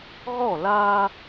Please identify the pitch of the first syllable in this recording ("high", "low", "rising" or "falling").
falling